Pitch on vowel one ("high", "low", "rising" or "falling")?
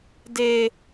high